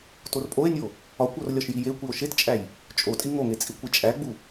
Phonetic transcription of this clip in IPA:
torpʼoe̯nʲo | ɒkʷor lʲɒʃjijekʷio̯ ʃett͡ʃʼæj | t͡ʃʼo tʼiŋoŋe t͡sʼikʷit͡ʃʼæɡ͡bu

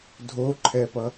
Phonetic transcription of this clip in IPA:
dʱoǃʰɛpʌ

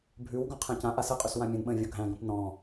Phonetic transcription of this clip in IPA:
bʱʉwɡɔ̃ qʰæ̃cãʔa səqʼʉs wãmʲə̃nɓə̃ː vʲoɡʱæ̃ɡõp nɔ̃

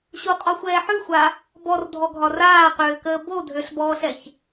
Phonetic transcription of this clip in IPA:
ɕuqʼɔxʷɛː ħʉxʷa | bɔrdʱɔɡʱɒ raːqøːkəː bo dʱøɬbɔːɬɛç

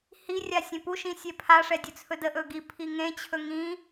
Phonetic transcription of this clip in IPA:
hirʲa sʲẽpuʃĩ sʲepʰaʂɛ dʲɵt͡sʰɵdəʔɵ ɡi pʰiŋẽt͡ɕʰɵ ŋĩ

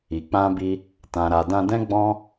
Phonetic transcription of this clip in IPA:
i˨k͡pã˧bi˧ | tã˨ɾa˨ dã˧dɛ̃˦ɡ͡bɔ̃˦

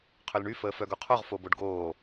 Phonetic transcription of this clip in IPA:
qʰølɳy fəːfœɡoqʰoʁ foboɖɡoː

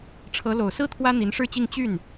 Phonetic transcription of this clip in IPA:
ʈ͡ʂʰɤ˧˥ lo˨˩ʊ̯sɹ̩˥ t̪ʰwä˥ n̪i˧˥nʂɻ̩˥˧t͡ɕi˥˧ŋ t͡ɕy˥˩n

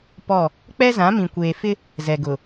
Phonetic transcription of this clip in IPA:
pɔ˦˨ | k͡pɛ˦zã˨˦mĩ˨ kʷeː˨fɪ˦ | zɛ˨ɡʊ˨

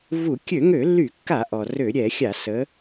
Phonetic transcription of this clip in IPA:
vu˧˩˧ kʲø˧˩˧ŋø˧˩˧lːy˧˩˧kːa˧˩˧ ʔɔ˩rø˧˩˧ɾʲɛ˧˩˧xʲa˧˩˧ sə˩˧

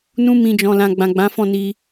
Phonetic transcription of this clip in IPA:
nũ˧mĩ˨d͡ʒɔ̃˨ lã˨ɡ͡bã˨ɡ͡bã˨˦ fɔ̃˦˨ni˧

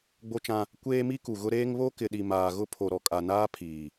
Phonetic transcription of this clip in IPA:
ɡ͡bo˦t͡ʃã˦ | kʷeː˦mi˦ku˨ɣʊ˦ ɾeː˦ŋ βo˦kɪ˨ɗi˨ maː˨ɣʊ˦ pʰo˨ɾɔ˨kʼa˨naː˦ pʰiː˨

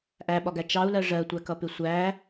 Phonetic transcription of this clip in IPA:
ʔæɓɒɡæ t͡ʃɑu̯lɜ ʐɜtʷækʌpɪ sʷæ

